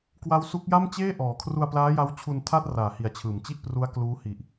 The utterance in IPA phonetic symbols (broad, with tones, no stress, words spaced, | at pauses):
kwa˦˥wsu˦˥k̚ ja˥˩mt͡ɕeː˥˩ʔɔː˩˦ kʰru˧a̯plaː˦˥ja˦˥wt͡ɕʰu˧n tʰa˥˩t̚raː˨˩hi˩˦a̯ t͡ɕʰɯː˨˩mt͡ɕi˥˩ʔpru˦˥a̯ kluː˦˥ hi˨˩ʔ